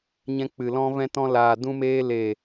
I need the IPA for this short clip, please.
ɲ ɛ̃˧ k͡p ɨ˨ l ɔ̃˧ v ɛ̃˧ t ɔ̃˧ l aː˨ d ũ˧ m eː˧ l e˨

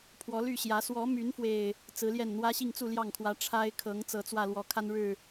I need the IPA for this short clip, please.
pʰ w ɔ˨˦ l y˥˨ ɕ j ä˨˦ s w ɔ˨˦ m y˨˦ n f w e˨˩ ɪ̯ | t͡s ɹ̩˨˦ l j ɛ˥˨ n n̪ w ä˦ ɕ i˥˨ ŋ t͡s u˥˨ l j ɑ˥˨ ŋ kʰ w ä˨˦ ʈ͡ʂʰ a˦ ɪ̯ kʰ ɤ˨˦ ŋ t͡s ɤ˨˦ t͡s w ä˥˨ l w ɔ˨˩ kʰ a˦ n ɻ ɻ̩˥˨

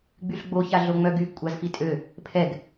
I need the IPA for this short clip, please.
ɡ͡b y ɬ ɡ͡b o ç a ɮ o ŋ͡m œ ɡ y ɡ kʷʼ a z f i tʼ ø | pʰ ɛ ɡ

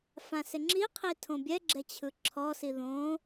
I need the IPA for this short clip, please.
f ã s ɪ ŋ͡ǁ i qʰ i tʰ õ bʲ ɛ ɡ͡ǁ ɛ t͡ɕʰ ɯ ǁʰ ɔ s i ð õ

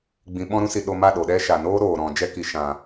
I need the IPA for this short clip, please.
ɡ͡b ĩ˨ ɓ ɔ̃˧ ɾ ũ˧ s i˨ ɗ o˧ m a˦˨ ɗ o˨ ɗ ɛ˦ ʃ a˨ n oː˦ ɾ oː˨ ɾ ɔ̃˨ d͡ʒ ɛ˧ k i˨ ʃ ã˨

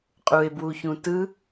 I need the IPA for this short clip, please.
qʼ u e̯ b w u ç ũ t ɯ

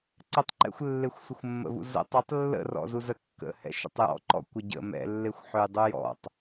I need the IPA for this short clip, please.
ǀ ə tˤ ǃ ɛ̰ xʷ lː e xʷ sʷ ə xʷ mː ə̰ v ṵ z ə̰ tˤ ə tˤ lː ə̰ r ɔ̰ z u z ə kː ə̰ h ɛ̰ ʃ ə̰ tˤ j ɔ̰ ǃ ɔ̰ kʷ ə ɟ ə̰ m ɛ̰ lː e xʷ ħ ø j dˤ u j ɔ̰ tˤ

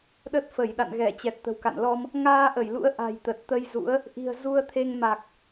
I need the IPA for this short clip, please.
ɗ ə˦˥ t̚ f ə˧˩ j ɗ a̰˧˨ n ɣ ɛ˧˩ t͡ɕ ɛ˨˩ t̚ t̪ ə̤˨˩ w k a̰˧˨ n l ɔ˧ m | ŋ aː˧ ʔ ə˧˩ j l ṵ˧˥ ə̯ ʔ a̤˨˩ j t̪ ə˨˩ t̚ t̪ ə˧ j z ṵ˧˥ ə̯ | ʔ i̤˨˩ ə̯ z u˧ ə̯ t̪ʰ e˧ ŋ m a˨˩ k̚

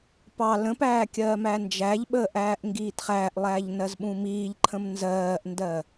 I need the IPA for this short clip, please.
p ɑ l ə̃ p æː kʲ ɜː m æ n d͡ʒ æ ʎ ɓ əː ʔ æː ʔ ŋ ɡ iː t χ æː ʔ lˠ æː ʎ n ɜ z ɓ ũ m iː ʎ ǃʰ ə̃ m n z ɜː ʔ n d ɜ

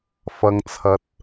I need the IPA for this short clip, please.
f ɐ˨ ŋ t͡sʰ ɐ˨˥ t̚

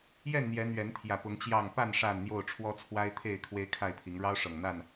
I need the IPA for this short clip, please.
j ɛ˥˨ n n̪ j ɛ˨˦ n̪ ɥ ɛ˨˦ n t̪ʰ j ä˨˩ p ʊ˨˦ ŋ t͡ɕ j ɑ˥˨ ŋ p a˥˨ n ʂ a˥˨ n n̪ j o˥˨ ʊ̯ ʈ͡ʂʰ w ɔ˦ t͡sʰ w a˦ ɪ̯ t̪ʰ e˥˨ ɪ̯ kʰ w e˦ ɪ̯ kʰ a˥˨ ɪ̯ pʰ i˨˦ ŋ ɻ ɑ˦ ʊ̯ ʂ ɤ˨˩ ŋ n̪ a˥˨ n

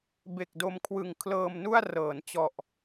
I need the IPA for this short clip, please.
b e˨˩ k̚ d o˧ m kʰ w ɯ˨˩ ŋ kʰ l ɤː˧ m n u˥˩ a̯ r ɤː˩˦ n t͡ɕ ɔ˨˩ ʔ

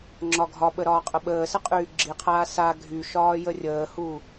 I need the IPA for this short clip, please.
ŋ͡ǁ ɒ ɡʱ ɒ ɓ ə ɾ ɒː qʼ ə ɓ əː s ə qʼ yː ɡ͡ǁ i qʰ aː s a ɡʱ y ʃ ɒː j ə rʲ əː h uː

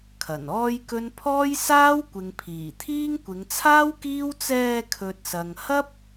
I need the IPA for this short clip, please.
kʰ ɐ˨˩ n ɔː˥ j k ɵ˥ n pʰ ɔː˥ j s aː˥ w kʷ ɪ˨ ŋ pʰ iː˨˩ t̪ʰ iː˥ ŋ kʷ ɪ˨˧ ŋ t͡sʰ aː˥ w k iː˥ w t͡s ɛː˧ kʰ ɵ˨ t̚ s ɐ˨ ŋ h ɐ˥ p̚

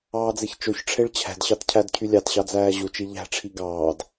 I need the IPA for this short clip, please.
ɑː d͡z e ç t͡ʃ o ç ʈ͡ʂʰ e ɭ t͡ɕʰ æ̤ d ɕ ɑ t cʰ æ d cʰ y lʲ ɑ t ɕ ɑ d͡z æː ʑ u t͡ʃ i ʎ æ̤ ʈ͡ʂʰ i ɡ ɑː d

